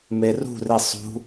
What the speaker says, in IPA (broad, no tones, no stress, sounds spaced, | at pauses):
m e r ṳ r i sˤ ṳ